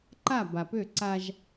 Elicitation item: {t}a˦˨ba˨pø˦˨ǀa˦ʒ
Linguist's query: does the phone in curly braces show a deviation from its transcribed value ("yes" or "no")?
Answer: yes